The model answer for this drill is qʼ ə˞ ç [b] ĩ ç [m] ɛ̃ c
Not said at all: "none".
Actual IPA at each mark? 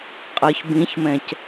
b, m

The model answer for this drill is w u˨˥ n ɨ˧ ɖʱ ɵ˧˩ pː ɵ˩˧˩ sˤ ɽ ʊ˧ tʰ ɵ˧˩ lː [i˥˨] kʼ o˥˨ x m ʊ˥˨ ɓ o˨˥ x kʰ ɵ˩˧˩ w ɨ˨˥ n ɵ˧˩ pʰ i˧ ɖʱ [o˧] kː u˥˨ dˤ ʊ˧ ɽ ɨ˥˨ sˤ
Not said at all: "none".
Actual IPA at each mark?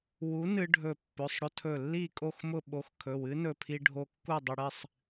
i˥˨, o˧

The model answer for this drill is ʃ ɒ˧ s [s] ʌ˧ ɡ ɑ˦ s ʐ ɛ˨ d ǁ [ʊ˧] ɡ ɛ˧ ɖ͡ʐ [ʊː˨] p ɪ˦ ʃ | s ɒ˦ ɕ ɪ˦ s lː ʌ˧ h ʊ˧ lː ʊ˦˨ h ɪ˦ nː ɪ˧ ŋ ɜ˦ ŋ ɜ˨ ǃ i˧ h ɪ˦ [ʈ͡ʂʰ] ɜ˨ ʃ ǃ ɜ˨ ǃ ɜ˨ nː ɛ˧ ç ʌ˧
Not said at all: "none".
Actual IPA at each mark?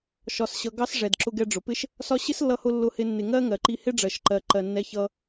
ɕ, ʊ˧, ʊ˨, ɖ͡ʐ

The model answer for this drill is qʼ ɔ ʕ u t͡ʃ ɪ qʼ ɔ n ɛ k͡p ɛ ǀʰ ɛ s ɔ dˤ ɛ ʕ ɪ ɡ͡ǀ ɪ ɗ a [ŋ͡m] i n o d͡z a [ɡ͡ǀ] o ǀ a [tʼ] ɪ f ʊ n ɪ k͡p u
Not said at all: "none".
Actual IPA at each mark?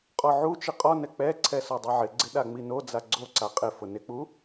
ŋ͡m, ɡ͡ǀ, qʼ

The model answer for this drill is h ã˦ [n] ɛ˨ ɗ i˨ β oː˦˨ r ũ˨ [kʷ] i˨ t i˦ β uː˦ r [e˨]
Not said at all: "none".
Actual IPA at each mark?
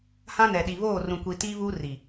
n, kʷ, i˨

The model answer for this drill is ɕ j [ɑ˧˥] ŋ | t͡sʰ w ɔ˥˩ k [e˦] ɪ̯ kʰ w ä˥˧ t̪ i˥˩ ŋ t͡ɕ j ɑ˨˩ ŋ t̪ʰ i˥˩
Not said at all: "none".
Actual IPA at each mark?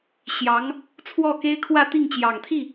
ɑ˧˥, e˥

